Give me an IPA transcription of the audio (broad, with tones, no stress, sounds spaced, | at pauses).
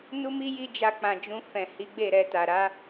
n u˦ m i˦ j i˦ d͡ʒ a˧ k͡p ã˨ d͡ʒ ũ˧ f ɛ̃˨ h i˨˦ ɡ͡b e˦˨ ɾ ɛ˧ t a˨ ɾ a˧